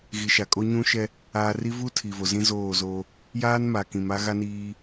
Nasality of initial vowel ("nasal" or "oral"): oral